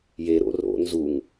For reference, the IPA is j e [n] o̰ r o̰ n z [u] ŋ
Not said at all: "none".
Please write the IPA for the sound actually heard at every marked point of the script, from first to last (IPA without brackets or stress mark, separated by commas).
ɾ, u